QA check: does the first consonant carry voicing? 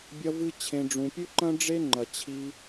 yes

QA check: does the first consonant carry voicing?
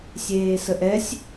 no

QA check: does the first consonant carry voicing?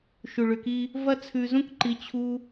no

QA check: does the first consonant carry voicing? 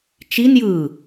no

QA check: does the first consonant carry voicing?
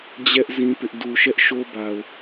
yes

